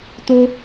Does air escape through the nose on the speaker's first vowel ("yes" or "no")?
no